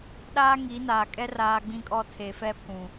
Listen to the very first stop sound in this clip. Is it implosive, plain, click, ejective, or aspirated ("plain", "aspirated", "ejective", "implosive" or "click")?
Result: implosive